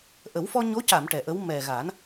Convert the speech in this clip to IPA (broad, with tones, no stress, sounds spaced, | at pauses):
ʔ ə˨˩˦ w f ɔ˧ ɲ o˧˥ c a˨˩˨ m ʈ ɛ˨˩ ʔ ə˧˥ w m ɛ˨˩ ɣ a˨˩˦ n